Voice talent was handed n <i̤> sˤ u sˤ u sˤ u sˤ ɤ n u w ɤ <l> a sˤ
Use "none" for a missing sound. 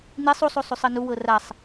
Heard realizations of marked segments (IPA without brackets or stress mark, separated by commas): i, r